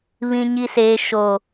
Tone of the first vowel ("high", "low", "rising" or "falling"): high